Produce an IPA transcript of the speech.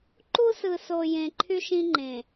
ǃ u˦ s ɯ˨ s o˨ j ẽ˨ ǃʰ y˦ ʃ ĩ˦ ŋ͡ǃ ẽ˨

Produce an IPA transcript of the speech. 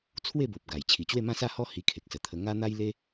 t͡sʰ w e˥˧ b o˨ p̚ ɡ a˨˩ j t͡ɕʰ i˨˩ t͡ɕ w e˥˧ m ã˥˧ s a˥˧ h ɔ˥˧ h i˧ kʰ e˨ k̚ s ə˨˩ t̪ʰ ə˧ ŋ a˦ n̪ a˦ j l e˦

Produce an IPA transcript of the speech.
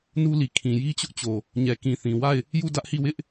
n u˦ l i˨ kʰ ĩ˨ j i˦ t͡ɕ ʊ˦ ʔ t͡ɕ o˨ | ɲ ɛ˨ k ĩ˨ θ ĩ˨ w a˦˨ ɪ̯ | j u˦˨ d ä˦ ʔ h i˦˨ w ɪ˦ ʔ

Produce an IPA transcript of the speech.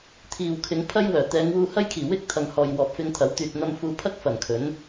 t̪ʰ iː˨ w kʰ ɪ˨˧ ŋ pʰ ɐ˥ j w œː˨˩ t̪ ɛː˨˧ ŋ w uː˧ h ɐ˥ j kʰ iː˨˩ w ɪ˥ k̚ t̪ʰ ɐ˨ ŋ h ɔː˨ j w ɔː˨ p̚ f ɪ˧ ŋ t̪ʰ ɐ˨˥ w t̪ yː˨ t̚ n̪ ɐ˧ m f uː˧ pʰ ɐ˥ k̚ f ɐ˨˩ n kʰ ɵ˨˥ n

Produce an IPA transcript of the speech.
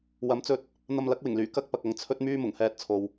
w ɐ˨˧ m t͡s ɵ˧ t̚ | n̪ ɐ˧ m l ɐ˨˥ k̚ w ɪ˨˩ ŋ l yː˨˩ k ɐ˥ k̚ p ɐ˨ k̚ ɐ˧ ŋ t͡sʰ ɵ˥ t̚ m yː˥ m ʊ˨˩ ŋ h ɛː˧ t̚ t͡sʰ o˨ w

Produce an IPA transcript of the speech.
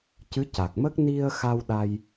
c ɨ˧˥ c a˨˩ k̚ m ə˦˥ k̚ n i˧ ə̯ x a˧ w ɗ a˧ j

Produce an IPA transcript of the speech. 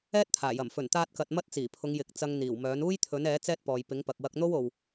ɛː˥ t̚ t̪ʰ aː˨˩ j ɐ˨˩ m f ɵ˨˩ n t̪ aː˧ t̚ k ɐ˨ t̚ m ɐ˥ t̚ t͡s iː˨˩ pʰ ʊ˨˧ ŋ j ɪ˨˥ k̚ t͡s ɐ˧ ŋ n̪ iː˨˩ w m œː˨˥ n uː˥ j t̪ʰ ɵ˨˥ n ɛː˨˥ t͡s ɛː˥ t̚ p ɔː˨ j p ɪ˨˥ ŋ p ɐ˨ k̚ w ɐ˧ k̚ n̪ o˥ w o˨ w

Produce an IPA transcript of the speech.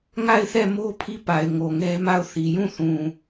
ŋ a˦˨ ɪ̯ θ ɛ˦˨ m o˦ pʰ i˦˨ p a˨ ɪ̯ ŋ o˨ ŋ ɛ˦ m a˦˨ ʊ̯ θ i˨ j ũ˦˨ θ ũ˨

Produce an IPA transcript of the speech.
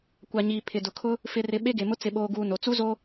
kʷ a˨ ɲ iː˨ pʰ ɪ˨ d ʊ˨ kʰ ʊ˦ | f ɪ˨ r ɪ˨ ɓ e˦ ɡ e˨ m ʊ˦ t͡s ɪ˨ ɓ oː˨ ɡ uː˨ n o˨ t͡s u˦ z o˦

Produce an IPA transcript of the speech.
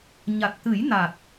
ɲ a˨˩ t̚ t̪ ɨ˨˩˦ j n a˨˩ t̚

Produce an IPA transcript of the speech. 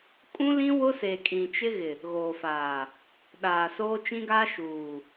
kʼ ũ˦ l ĩ˦ w ʊ˦ s e˨ kʼ ĩ˨ t͡ʃ ɪ˦ ɣ ɪ˨ | ɣ oː˨ f aː˨ | ɗ aː˨ s oː˦ t͡ʃ ĩ˦ ɡ aː˦ ʃ uː˨

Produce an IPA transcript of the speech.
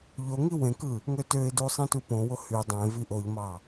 ʎ o ŋ i w ẽ k ɯ | ŋ ø t ø ɪ̯ d u sˤ ĩ t u p õ w o h y dˤ ẽ v i ʔ o ʎ m ɑ

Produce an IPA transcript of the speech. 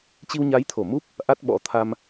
t͡ɕ i˧ w ɲ a˨˦ j t̪ʰ o˧˩ m u˦˥ p̚ | ʔ a˦˥ t̚ ɓ ɔ̰˧˥ t̪ʰ a˧ m

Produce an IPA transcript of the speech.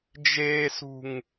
d͡ʒ eː s ṳ ŋ

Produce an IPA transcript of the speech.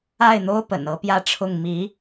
a˥˩ ɪ̯ n̪ o˥ ʊ̯ p ə̰˨˩ n ɤ˧˥ p j ä˥˧ ʈ͡ʂʰ ʊ˥˩ ŋ m i˧˥

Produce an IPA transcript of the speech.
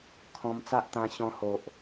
kʰ ɔ̃˧ m t͡s a˦ ʔ t̪ ã˧ ɕ ɔ̃˧ h o˨ ʔ

